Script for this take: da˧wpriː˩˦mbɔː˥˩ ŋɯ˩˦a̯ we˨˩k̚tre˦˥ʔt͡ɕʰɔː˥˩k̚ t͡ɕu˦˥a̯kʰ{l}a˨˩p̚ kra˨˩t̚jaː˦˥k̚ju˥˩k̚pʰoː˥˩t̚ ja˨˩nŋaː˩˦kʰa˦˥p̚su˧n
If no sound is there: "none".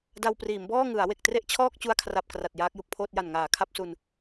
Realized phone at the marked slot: r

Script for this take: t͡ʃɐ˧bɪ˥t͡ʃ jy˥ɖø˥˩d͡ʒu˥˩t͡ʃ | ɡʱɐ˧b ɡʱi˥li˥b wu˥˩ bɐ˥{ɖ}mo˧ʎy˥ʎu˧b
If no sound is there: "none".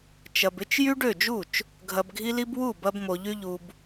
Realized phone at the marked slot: b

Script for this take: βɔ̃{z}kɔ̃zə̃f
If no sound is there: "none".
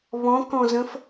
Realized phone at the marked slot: none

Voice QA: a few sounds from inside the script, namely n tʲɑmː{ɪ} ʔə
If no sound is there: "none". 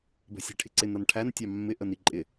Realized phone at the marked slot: ɪ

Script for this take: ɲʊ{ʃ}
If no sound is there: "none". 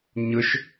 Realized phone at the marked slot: ʃ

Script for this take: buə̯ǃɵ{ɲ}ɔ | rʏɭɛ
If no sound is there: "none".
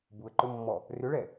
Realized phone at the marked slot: mː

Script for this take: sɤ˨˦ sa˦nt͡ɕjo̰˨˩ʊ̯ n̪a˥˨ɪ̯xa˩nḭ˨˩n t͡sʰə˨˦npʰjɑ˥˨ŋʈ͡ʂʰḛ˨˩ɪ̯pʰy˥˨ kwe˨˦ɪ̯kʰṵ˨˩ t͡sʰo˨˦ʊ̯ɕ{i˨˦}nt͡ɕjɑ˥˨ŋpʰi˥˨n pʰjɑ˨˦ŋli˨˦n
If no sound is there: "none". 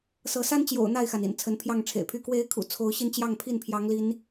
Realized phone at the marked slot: i˧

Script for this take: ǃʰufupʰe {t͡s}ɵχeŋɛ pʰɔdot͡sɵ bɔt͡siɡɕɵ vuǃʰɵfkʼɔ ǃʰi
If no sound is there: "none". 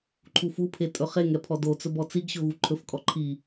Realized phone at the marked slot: tʼ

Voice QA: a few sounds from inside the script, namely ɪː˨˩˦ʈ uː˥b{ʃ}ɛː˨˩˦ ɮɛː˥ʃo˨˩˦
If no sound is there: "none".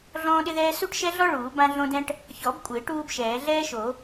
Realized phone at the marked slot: ʃ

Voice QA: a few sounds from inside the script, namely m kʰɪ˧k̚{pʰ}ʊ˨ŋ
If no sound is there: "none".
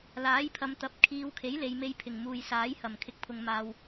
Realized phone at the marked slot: pʰ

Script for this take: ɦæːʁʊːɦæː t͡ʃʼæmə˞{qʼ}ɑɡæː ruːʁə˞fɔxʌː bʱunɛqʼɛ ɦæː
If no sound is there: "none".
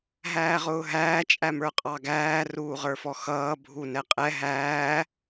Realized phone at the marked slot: qʼ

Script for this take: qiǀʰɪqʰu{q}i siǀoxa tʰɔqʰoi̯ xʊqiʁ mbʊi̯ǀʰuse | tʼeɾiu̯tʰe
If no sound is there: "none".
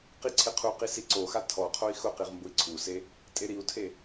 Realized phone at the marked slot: q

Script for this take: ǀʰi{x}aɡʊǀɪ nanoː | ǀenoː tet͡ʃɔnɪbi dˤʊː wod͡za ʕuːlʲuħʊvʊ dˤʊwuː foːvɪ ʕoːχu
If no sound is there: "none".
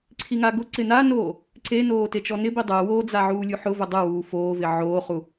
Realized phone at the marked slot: ŋ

